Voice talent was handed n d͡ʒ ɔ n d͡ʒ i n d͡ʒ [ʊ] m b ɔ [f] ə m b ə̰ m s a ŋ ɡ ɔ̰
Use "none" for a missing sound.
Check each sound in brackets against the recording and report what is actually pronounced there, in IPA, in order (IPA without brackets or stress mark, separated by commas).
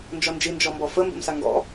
ɔ, f